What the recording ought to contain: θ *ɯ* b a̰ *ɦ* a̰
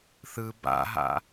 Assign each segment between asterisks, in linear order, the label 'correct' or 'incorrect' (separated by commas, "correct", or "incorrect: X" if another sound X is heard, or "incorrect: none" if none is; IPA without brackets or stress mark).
correct, correct